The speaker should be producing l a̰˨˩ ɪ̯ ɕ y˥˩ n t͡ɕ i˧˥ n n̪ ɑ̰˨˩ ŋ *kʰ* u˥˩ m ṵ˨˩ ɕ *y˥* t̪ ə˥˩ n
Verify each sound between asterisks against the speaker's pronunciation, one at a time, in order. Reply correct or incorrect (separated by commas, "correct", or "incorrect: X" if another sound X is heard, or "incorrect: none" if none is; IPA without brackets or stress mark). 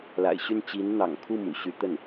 correct, correct